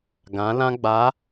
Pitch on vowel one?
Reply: rising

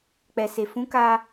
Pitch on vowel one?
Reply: low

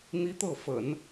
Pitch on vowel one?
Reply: high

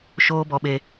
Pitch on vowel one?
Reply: high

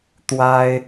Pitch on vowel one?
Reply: high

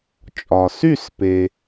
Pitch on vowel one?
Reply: low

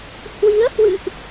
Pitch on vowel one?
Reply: rising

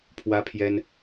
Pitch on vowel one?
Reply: high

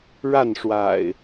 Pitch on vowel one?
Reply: falling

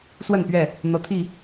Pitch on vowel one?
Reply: falling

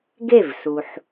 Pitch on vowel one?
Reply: falling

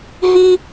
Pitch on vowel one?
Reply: high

